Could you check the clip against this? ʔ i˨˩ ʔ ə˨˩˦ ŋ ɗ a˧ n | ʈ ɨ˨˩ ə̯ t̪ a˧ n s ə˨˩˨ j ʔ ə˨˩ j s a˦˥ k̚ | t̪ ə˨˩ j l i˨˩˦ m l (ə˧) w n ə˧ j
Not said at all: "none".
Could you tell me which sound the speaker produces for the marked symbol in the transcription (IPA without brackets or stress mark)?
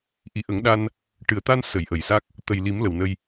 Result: ə˨˩